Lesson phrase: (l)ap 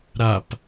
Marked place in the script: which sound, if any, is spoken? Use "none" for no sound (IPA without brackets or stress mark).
ɾ